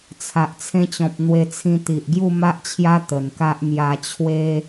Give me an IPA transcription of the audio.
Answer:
t͡sʰ a˨ ʔ t͡sʰ ẽ˧ t͡ɕ ɔ̃˨ p̚ n̪ w e˧ t͡sʰ ĩ˧ t̪ i˨ ʔ ɡ j u˥˧ m a˦ ʔ t͡ɕʰ j a˦ t̪ ə˨˩ n k a˦ ʔ m j a˧ t͡ɕʰ w e˦

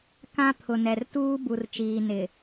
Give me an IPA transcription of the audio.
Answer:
k ã˦ pʰ ʊ˨ n ɛ˨ r t uː˦ b u˨ r t͡ʃ iː˨ n ɪ˨

